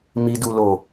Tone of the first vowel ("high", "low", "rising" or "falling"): low